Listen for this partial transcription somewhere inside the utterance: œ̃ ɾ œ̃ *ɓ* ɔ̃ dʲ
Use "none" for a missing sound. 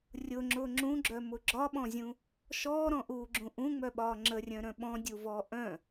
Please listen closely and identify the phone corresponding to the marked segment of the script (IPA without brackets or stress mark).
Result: ɓ